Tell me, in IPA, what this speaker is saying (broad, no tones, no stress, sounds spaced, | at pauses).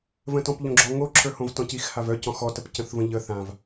v ə̃ t ɔ̃ p ʎ õ ɡ͡ǁ ɔ ŋ o ǁʰ ə˞ h õ v t ɔ̃ c i x h a v œ c ɔ̃ x ɔ t ə p c ə̃ θ v ə̃ ʎ ə θ ã v